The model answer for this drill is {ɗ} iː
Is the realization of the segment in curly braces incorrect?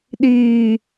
no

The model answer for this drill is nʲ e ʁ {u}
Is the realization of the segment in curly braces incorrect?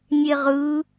yes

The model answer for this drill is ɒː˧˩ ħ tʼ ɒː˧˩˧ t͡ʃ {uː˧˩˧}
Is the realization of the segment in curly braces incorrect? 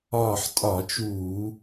no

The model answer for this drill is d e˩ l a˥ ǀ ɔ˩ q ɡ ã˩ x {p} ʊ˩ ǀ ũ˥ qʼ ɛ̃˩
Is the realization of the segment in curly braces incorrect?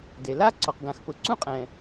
no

